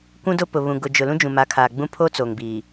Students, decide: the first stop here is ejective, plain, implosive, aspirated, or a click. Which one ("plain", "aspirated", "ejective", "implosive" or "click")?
plain